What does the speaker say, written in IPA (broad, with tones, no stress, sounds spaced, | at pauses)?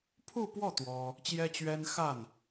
pʰ u˥˧ p w ɔ˥˩ t̪ w ɔ˥ | t͡ɕ j ɛ˥ t͡ɕ ɥ ɛ˥ n x a˥˩ n